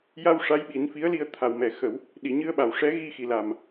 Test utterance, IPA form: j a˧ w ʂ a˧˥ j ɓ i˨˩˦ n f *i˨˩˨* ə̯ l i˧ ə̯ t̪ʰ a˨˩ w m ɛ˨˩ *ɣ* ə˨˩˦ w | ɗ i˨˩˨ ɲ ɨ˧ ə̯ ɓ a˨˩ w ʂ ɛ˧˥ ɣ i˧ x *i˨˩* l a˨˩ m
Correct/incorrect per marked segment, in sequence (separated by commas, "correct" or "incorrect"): incorrect, incorrect, correct